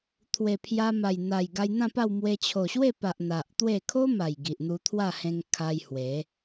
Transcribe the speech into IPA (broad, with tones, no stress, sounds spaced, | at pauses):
t̪ʰ w e˨˩ pʰ j a˧ m a˨˩ j n̪ a˨˩ j ɡ a˧ j n̪ ã˥˧ p a˥˧ w m w e˧ t͡ɕʰ o˨˩ ɕ w e˥˧ p a˨ ʔ n̪ a˨ ʔ t̪ w e˥˧ kʰ o˦ m a˨˩ j ɡ i˨ ʔ n̪ u˧ t̪ʰ w a˥˧ h ẽ˧ ŋ kʰ a˧ j h w e˨˦